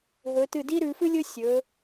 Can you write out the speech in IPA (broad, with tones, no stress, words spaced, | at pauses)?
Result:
ɦɵ˩˧tɨ˧˩di˥ɾʉ˩˧ fɨ˥lʲɵ˥ sʲɵ˩˧